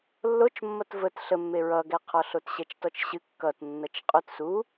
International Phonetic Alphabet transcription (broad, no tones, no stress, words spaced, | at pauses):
lːot͡ʃmːʌt vət ɬəmːe ɹʌɡɛqʰɔ ɬotɕɛt͡ʃtɔt͡ʃɕɨ kːʌtnːʌt͡ʃ qʼot su